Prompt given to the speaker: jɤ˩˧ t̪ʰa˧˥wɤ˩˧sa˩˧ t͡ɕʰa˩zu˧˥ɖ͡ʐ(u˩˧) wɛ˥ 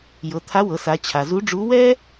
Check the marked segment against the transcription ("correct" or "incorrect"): incorrect